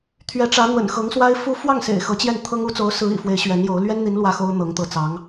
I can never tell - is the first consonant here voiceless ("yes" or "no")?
yes